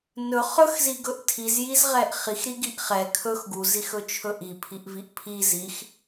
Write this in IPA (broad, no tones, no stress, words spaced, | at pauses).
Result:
nɵ χɵxziɡɵʔ tʰizjizʁɛʔ χixɾiɡiʔ χɛ kʰɵx ɡuzixɵt͡ʃʰɵ ʔipʰiʔviʔ pʰiz ix